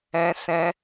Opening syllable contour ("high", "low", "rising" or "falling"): high